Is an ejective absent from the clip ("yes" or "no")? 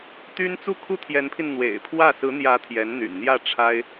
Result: yes